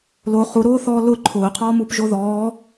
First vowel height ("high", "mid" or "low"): mid